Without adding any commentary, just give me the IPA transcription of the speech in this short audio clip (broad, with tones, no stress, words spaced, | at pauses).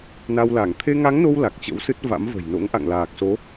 na˧wla˧˩ŋ t̪ʰe˧ŋa˨˦ŋno˧w la˨˩k̚t͡ɕə̰˧˥wsɨ˦˥t̚ va̰˧˥mvə̤˨˩j no̰˧˥ŋʔa̰˧˨ŋlaː˨˩k̚so˨˦